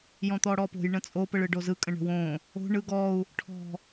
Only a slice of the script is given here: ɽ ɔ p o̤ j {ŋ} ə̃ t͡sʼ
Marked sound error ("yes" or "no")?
yes